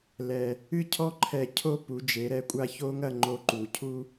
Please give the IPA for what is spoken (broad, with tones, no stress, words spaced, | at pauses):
lɛ˧ | ɨ˥˧cʰɔ˥ ǃʰɛ˧ cʰo˥˧ pu˩˧d͡ʒe˩˧ɾɛ˧˩kʷʼa˧ ço˥ŋɐ˥˧ ŋ͡ǃo˧ǃu˩˧cʰu˥